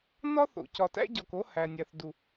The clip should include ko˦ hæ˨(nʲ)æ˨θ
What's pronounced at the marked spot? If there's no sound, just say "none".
nʲ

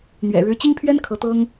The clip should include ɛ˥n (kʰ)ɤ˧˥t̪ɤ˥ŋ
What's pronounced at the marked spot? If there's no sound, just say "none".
kʰ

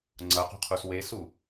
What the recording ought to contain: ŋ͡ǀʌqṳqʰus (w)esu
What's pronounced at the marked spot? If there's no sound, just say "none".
w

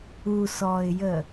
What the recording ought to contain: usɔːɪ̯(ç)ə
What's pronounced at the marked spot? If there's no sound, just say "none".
j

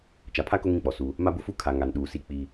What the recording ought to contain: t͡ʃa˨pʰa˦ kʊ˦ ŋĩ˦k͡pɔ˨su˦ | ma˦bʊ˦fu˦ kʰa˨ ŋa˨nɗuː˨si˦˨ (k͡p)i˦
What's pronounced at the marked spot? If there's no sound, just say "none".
k͡p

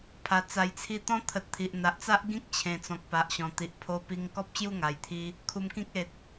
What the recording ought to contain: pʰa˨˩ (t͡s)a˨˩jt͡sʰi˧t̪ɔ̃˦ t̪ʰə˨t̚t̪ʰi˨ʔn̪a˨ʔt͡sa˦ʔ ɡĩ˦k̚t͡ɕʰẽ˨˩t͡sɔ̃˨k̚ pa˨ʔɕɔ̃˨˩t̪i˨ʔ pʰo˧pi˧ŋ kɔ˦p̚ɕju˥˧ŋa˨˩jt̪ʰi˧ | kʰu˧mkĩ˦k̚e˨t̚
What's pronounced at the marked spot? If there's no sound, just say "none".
t͡s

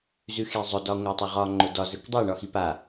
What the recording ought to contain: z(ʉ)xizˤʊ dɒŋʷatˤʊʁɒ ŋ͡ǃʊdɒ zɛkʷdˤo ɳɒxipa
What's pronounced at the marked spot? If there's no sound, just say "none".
ʉ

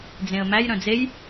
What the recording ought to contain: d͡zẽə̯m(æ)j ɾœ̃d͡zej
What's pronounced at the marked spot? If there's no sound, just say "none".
æ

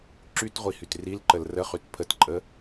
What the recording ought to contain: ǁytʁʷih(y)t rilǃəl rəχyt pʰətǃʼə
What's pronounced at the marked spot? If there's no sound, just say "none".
y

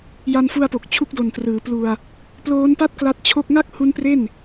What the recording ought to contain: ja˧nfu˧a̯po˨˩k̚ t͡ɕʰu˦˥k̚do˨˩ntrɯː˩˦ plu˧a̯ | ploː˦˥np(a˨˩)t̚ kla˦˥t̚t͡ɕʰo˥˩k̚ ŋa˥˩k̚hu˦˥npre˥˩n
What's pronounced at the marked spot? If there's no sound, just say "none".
a˥˩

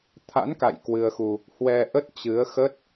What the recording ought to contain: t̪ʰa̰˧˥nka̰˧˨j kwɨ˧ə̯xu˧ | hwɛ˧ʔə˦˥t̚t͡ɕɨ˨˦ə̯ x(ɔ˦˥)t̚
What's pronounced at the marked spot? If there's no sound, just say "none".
ə˦˥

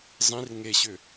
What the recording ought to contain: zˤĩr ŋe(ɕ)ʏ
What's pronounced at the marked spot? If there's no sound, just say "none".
ɕ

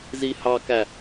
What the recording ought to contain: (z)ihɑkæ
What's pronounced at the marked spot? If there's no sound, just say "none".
z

